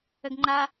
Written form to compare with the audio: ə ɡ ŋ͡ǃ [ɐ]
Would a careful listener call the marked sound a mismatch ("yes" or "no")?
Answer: yes